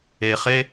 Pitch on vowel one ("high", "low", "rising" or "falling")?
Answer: low